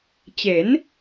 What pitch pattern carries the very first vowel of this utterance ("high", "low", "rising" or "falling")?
rising